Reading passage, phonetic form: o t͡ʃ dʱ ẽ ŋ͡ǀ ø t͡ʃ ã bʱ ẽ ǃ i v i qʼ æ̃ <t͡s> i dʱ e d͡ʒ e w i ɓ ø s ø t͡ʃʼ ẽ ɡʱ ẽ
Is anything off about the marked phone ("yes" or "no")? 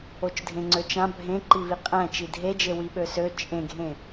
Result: yes